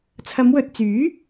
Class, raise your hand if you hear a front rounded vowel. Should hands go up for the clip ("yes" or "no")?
yes